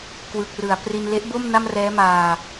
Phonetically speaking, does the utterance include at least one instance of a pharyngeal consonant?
no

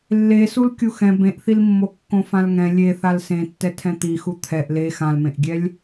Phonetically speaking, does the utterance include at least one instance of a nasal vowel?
yes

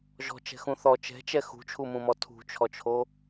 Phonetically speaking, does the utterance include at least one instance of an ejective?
no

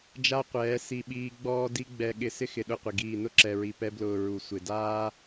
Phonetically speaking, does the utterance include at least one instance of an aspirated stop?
no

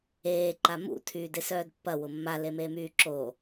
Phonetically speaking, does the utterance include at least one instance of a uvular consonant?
no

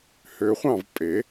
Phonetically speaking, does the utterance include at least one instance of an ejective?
yes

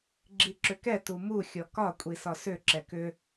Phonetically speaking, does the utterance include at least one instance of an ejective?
yes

